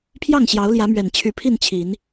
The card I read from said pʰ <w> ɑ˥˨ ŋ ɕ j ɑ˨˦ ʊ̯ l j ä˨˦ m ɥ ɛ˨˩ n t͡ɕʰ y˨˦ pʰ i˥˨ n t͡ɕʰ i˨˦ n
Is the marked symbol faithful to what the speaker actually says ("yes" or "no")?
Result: no